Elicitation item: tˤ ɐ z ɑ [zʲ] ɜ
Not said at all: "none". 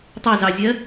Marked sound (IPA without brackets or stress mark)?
zʲ